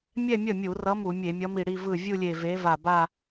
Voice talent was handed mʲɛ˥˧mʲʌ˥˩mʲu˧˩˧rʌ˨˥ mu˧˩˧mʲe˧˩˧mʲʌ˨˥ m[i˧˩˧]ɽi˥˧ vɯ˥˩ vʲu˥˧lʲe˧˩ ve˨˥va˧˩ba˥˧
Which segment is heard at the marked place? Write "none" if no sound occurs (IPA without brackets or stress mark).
i˧˩